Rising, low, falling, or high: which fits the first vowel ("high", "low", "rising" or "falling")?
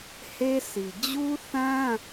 high